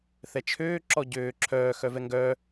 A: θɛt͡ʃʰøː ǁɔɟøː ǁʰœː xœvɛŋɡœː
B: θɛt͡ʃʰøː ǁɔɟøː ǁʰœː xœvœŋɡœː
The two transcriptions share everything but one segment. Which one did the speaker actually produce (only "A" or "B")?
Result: A